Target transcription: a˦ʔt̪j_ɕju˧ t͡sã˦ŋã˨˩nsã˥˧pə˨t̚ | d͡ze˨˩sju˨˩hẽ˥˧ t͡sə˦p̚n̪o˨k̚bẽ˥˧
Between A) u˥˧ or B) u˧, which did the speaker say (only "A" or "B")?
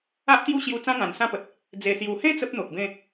A